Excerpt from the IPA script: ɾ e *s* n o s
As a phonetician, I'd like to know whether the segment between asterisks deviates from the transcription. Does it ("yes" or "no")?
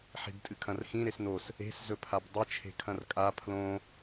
no